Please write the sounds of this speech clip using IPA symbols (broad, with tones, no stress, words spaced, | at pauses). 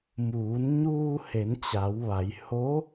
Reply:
muː˩˧nɲuː˧ he˩˧nt͡ɕa˩˧w ʋa˩˧j ho˧˥